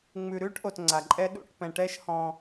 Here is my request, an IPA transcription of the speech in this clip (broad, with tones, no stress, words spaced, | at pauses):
ŋ͡mʉ˨ɾʉː˦ʈʔo˨t ŋ͡ǀa˨ǃʼɛ˦ ɗṵ˦˨ʈpɛ̃˨ʈɛ˦ʃ hɔ̃˦